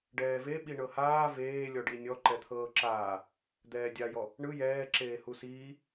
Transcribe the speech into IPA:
ɖ ɛː v e ɓ i ɳ ɤ h aː v eː lʲ ɔ ɖ i nʲ ɔ ǃ ɛ t̪ʰ ɤː ǁ aː | d̪ ɛː dʲ a j ɔ | ɳ ɯ j ɛː ǁ eː h u s iː

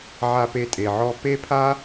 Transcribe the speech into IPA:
ʕ a˧ p e˧ tʼ e˨ ʕ ɔ˧ p e˦ pʰ a˦

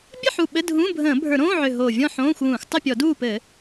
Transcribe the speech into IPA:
bʲ ə˥˨ ħ u˨˩ ɓ ɘ˧˥˧ dʱ ũː˧˥˧ bʱ ə̃ː˧˩˧ bʱ ə˞˧˩˧ ɾ õː˧˥˧ ʕ ʏ˨˩ ɦ oː˨˩ vʲ ɔ̃˥˨ ħ õː˧˥˧ xʷ w ũː˧˩˧ xʷ tˤ ɘ˥˨ pʲ ɔ˧˩˧ d uː˥˨ p ɘ˧˩˧

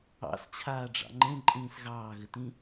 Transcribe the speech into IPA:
ɑ̰ s t͡ɕʰ aː ɖ͡ʐ ɑ̰ ŋ͡ǃ ẽ ǃʼ ĩː s ɣ ɑː ɣ ɘ t ĩ

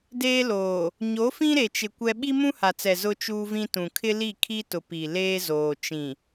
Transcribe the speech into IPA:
d eː˦ l oː˨ | ɲ o˨˦ f ĩ˦ ɾ e˨ t͡ʃ ɪ˨ kʷ ɛ˦ ɓ i˦ m ũ˦ h a˨ t͡s ɛ˨ z ʊ˦ t͡ʃ uː˦ v ĩ˦ t ũ˨ kʰ ɪ˦ l i˦˨ kʰ i˦ t ʊ˨ p i˨ l eː˦ z oː˨ t͡ʃ ĩ˨

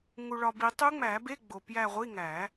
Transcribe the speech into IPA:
ŋ u˨ ɭ ɒ˨ b i˨˩˦ tˤ u˧˥ ŋ͡m æ˨˩˦ b e˧˥˧ ɡ͡b o˨ p j æ˦˨ ʁʷ i˧˥˧ ŋ æ˨˩˦

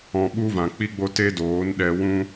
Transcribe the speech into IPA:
ɔ̃˧ ɓ u˦ v ã˨ k͡p i˦ ɡ͡b o˦ t e˦ d oː˨˦ n ɗ ɛ˧ w ũ˧

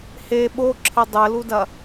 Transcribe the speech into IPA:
h e ɓ o ǁʰ ɘ dˤ ɘ l u d ɐ

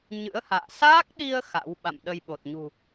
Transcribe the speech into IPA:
ɲ ɨ̰˧˥ ə̯ h a̰ː˧˨ s aː˦˥ k̚ ɗ i˧ ə̯ x a̰˧˥ w ɓ a̰˧˨ m ɗ ə˧ j ɓ o˨˩ t̚ ɲ ṳ˨˩

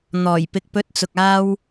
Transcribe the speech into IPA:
n̪ ɔː˨˩ j p ɪ˨˥ k̚ p ɵ˨˥ t̚ t͡s ʊ˨ k̚ aː˧ w

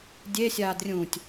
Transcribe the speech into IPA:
dʲ e sʲ aː d rʲ ũ tʲ

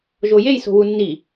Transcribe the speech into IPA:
ʒ o j e j s o̤ w u nː i

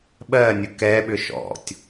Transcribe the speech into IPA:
ɓ ɜ nʲ ʊ k ɛ ɓ ʏ ʃ ɔ̰ tʲ

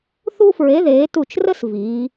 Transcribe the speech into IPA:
θ u˥ f ɹ e˨˥ ð eː˩˧ t u˧˩ t͡ʃ r ə˥ s v iː˩˧

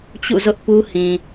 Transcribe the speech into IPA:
t͡ɕ ṵ˦˨ z ʊ˦ ʔ p u˦ h ĩ˨

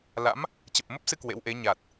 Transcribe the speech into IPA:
l a̰˧˥ m | t͡ɕ ə˨˩ p̚ m ə˦˥ p̚ s ɨ˧ k w ḛ˧˥ w ʔ e˨˦ ɲ a˨˩ t̚

